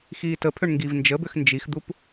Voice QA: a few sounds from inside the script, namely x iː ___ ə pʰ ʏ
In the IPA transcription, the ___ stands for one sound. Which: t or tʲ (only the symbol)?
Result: t